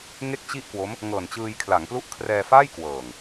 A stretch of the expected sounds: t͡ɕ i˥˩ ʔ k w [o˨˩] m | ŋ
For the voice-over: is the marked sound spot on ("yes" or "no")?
no